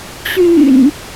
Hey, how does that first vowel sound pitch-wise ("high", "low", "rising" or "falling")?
low